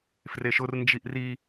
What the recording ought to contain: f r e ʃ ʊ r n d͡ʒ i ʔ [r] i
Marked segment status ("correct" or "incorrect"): correct